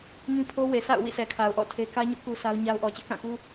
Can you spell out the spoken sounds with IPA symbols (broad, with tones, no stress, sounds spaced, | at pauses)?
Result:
ŋ ĩ˦ pʰ o˦ w e˨ sʰ a̰˦˨ ʊ̯ w ḭ˦˨ s ɛ˨ kʰ a˨ ʊ̯ ʔ ɔ̰˦˨ tʰ e˦ k ä˦ ɲ ʊ˦ ʔ k u˦ sʰ a˦ ʊ̯ ɲ a˦ ʊ̯ ʔ ɔ˨ t͡ɕ ɪ˦ ʔ k ã˦˨ k u˦